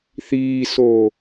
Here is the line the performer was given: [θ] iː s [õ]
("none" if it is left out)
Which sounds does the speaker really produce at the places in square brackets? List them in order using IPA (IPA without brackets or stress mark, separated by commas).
θ, o